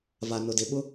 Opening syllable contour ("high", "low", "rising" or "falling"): low